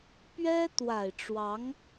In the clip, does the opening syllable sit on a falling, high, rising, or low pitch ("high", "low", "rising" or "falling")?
high